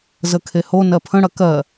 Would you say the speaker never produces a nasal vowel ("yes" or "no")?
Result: no